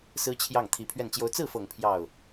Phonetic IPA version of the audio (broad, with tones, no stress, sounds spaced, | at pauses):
s ɹ̩˥ t͡ɕʰ j ɑ˥˩ ŋ t̪ʰ i˧˥ pʰ ɥ ɛ˥˩ n t͡ɕ j o˥ ʊ̯ t͡s ɹ̩˥˩ f ɤ˨˩ ŋ pʰ j ɑ˥˩ ʊ̯